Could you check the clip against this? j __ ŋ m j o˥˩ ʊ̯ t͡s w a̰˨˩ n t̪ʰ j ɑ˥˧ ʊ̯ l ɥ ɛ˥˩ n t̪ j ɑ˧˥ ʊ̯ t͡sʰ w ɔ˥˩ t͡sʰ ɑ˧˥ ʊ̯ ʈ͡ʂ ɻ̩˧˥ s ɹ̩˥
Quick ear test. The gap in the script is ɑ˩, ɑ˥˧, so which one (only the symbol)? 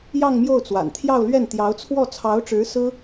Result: ɑ˥˧